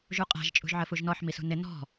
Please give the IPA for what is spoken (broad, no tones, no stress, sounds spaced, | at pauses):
ʒ u qʼ æ̤ ʒ t͡ʃʼ ṳ ʒ ʕ ə f u ʒ n ɔ ħ m i s ṳ n ɪ n ɔ̤